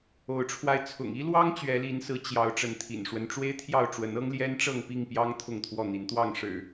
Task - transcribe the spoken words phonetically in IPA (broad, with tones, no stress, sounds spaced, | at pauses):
o˨˦ ʊ̯ ʈ͡ʂʰ w a˧ ɪ̯ t͡sʰ ʊ̰˨˩ ŋ i˦ l w ɑ˦ ŋ t͡ɕ ɥ ɛ˨˦ l i˨˦ n s ɹ̩˨˦ t͡ɕ j ɑ˨˦ ʊ̯ ʈ͡ʂ ə˨˦ n t̪ʰ ḭ˨˩ n ʂ w ə˦ n ʈ͡ʂ w e˦ ɪ̯ t̪ʰ j ɑ˥˨ ʊ̯ ʈ͡ʂ w ə˨˦ n ɤ˦ ŋ l j ɛ˦ n ʈ͡ʂ ɤ˥˨ ŋ p i˥˨ ŋ p j ɑ˦ ŋ t̪ʰ ʊ˥˨ ŋ t̪ʰ w ɔ˥˨ n̪ i˨˦ n t̪ w ɑ˥˨ ŋ ʂ ɻ̩˨˩